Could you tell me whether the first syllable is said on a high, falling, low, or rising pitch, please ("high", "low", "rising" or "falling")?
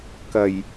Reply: low